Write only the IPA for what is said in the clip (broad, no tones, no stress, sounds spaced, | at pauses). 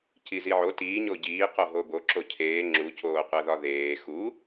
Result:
c i z i ʕ o t iː ɲ o ɟ iː q o ɦ o b o ǁ o cʰ eː ŋ͡ǁ u c oː qʷ æ ð ɒ ð eː x u